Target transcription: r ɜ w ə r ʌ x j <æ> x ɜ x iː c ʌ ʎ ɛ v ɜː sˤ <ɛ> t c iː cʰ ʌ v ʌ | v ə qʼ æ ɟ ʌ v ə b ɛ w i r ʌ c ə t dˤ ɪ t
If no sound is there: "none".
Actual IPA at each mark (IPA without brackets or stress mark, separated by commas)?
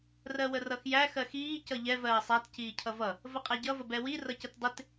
æ, æ